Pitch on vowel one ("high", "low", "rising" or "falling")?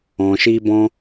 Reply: low